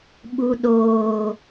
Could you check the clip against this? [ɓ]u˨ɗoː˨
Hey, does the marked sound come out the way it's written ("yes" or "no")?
yes